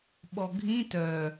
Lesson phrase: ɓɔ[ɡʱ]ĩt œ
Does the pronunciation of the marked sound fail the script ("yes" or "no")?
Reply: no